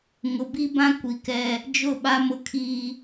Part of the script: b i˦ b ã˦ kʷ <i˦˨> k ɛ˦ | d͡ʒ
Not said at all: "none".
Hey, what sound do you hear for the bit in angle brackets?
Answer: i˨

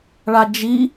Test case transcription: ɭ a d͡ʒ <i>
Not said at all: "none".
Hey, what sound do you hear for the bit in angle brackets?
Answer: i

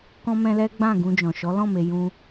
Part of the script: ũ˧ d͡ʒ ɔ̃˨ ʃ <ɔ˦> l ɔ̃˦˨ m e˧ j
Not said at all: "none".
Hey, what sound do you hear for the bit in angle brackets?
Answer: ɔ˨˦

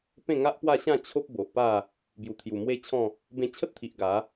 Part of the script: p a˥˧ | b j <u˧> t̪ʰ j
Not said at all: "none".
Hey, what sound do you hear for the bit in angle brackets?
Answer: u˨˩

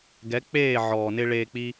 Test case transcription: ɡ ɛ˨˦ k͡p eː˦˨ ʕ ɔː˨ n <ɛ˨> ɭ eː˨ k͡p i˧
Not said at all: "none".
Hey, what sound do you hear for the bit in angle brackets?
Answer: ɪ˨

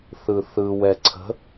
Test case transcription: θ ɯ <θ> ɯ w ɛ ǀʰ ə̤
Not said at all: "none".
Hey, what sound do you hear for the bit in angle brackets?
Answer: θ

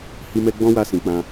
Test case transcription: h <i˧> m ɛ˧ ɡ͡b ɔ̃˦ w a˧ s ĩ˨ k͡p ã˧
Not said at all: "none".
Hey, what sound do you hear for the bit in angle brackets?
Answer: i˧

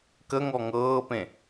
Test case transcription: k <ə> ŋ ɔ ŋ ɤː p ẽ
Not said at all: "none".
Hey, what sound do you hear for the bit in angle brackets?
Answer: ə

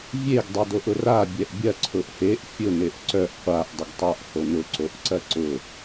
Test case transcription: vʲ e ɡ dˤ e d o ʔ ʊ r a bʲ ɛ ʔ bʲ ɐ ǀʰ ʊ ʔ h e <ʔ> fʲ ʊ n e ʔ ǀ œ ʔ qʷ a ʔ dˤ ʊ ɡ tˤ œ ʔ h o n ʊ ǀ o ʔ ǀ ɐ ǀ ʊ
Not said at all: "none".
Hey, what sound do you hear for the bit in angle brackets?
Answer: ʔ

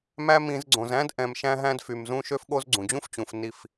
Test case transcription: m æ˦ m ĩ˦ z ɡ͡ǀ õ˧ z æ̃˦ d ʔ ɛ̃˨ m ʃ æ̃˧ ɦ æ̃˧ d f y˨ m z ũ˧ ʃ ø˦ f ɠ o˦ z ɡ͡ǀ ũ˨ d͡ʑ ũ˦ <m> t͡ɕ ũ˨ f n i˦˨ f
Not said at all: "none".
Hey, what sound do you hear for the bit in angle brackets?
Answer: f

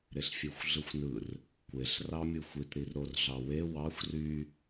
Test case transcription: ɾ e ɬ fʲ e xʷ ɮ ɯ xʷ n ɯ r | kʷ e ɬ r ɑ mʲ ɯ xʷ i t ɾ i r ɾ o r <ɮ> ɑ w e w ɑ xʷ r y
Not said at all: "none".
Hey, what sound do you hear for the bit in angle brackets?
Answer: ɮ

